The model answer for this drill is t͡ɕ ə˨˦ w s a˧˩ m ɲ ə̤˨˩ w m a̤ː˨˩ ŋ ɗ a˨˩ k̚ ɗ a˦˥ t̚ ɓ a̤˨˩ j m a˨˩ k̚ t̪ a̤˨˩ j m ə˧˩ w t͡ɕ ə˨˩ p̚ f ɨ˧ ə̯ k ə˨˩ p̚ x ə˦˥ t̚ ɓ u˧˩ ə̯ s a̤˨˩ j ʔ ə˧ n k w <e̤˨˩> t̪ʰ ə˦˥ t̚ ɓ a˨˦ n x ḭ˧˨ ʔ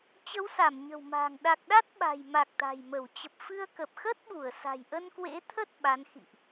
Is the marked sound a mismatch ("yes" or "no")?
yes